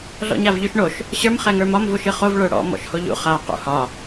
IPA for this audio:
ɮ ɔ̰ ɲ a v ʎ y ʃ ɳ o ʃ | ɕ ə˞ m χ ɛ ŋ ə˞ m ɒ m v u ʃ ɨ χ o v ɭ ə˞ ɽ ɔ̰ m ɔ̰ ʃ h o ʎ ṵ χ a q ṵ h ɒ

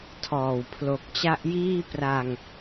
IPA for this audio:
tʰ ɔː˨˩ w pʰ l o˨˩ k̚ t͡ɕ a˦˥ ʔ j iː˥˩ p r a˧ ŋ

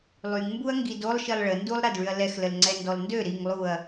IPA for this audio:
lˠ y ŋ m b u ɐ̯ ŋ ɡ i d o lˠ ʃ i lˠ ɭ ə n d u lˠ ɾ a d ɭ y ɐ̯ l ɛ x l ə l ŋ͡ǀ ɛ n d ɔ l n d ø ɾ i ŋ lˠ u ɐ̯

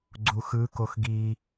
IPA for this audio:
ɡ͡ǀ u x ɯ k o x ɡ i

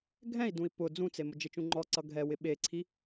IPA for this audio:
ɡʱ ɛ̃ i̯ d ũ i̯ p ʊ d͡z ũ t͡s e m ʊ d͡ʒ ɪ t͡ʃ ũ ŋ͡ǃ ɔ ǀ ʌ ɡʱ ɛ w ɪ ɓ e ǀʰ i

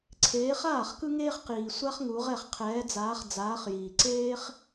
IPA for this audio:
ǀʰ eː˨˦ χ aː˥˩ χ k ɯ˥ ŋ eː˥ χ q iː˨ sʷ a˥ χ ŋ u˨˦ ʁ ɛ˥˩ χ qʰ ɛː˨˦ d͡z aː˨˦ χ d͡z aː˨˦ χ j iː˨ ǀ eː˥ χ

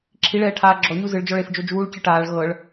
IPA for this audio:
ǁʰ i ɭ ɛː ʈʰ aː ɡ͡ǁ ɔ ɲ u z ɯ ɭ d͡ʒ ɔ ɭ e f d͡ʒ o d͡ʒ uː ɭ c ɯ ʈ aː ɭ ɣ ɤ ɭ

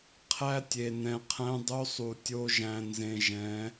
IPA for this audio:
qʰ æ˦ tʲ e˨ n ɛ̃˨ qʰ æ̃˦ dˤ o˦ sˤ u˨ tʲ o˦ ʒ æ̃˨ n z ẽ˨ ʒ ɛ̃˨˦

